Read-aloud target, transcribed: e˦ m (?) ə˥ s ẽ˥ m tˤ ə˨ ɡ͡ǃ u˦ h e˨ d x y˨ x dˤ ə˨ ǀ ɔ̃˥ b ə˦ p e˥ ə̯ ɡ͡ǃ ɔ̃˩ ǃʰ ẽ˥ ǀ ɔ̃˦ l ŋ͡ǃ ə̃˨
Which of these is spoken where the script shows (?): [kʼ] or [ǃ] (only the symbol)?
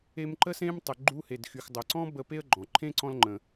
ǃ